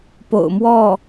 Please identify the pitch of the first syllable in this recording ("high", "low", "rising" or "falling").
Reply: low